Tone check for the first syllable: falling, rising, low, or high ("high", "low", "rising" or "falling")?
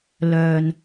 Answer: low